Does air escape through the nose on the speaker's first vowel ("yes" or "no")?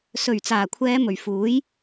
no